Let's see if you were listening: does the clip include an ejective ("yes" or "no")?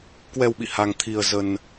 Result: no